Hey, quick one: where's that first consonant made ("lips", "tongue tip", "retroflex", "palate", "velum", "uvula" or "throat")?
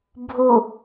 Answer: lips